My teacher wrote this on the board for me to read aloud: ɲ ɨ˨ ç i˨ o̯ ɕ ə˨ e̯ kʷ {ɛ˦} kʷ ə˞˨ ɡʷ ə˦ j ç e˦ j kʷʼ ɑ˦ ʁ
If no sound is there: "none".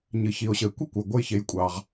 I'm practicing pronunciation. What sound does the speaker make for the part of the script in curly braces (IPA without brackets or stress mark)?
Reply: ɛ˦